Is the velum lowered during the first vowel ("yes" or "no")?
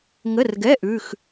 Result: no